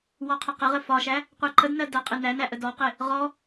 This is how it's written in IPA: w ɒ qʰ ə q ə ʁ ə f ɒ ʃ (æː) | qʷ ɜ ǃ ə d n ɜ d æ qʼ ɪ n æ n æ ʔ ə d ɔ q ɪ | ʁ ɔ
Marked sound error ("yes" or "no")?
yes